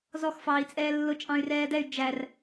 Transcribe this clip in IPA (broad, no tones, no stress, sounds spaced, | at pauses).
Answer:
z ɔ x f ɑː i̯ t͡sʼ ɛː lː ʊ t͡ʃʼ ɑ̃ y̯ r ɛː d ɛ y̯ d͡ʒ æ r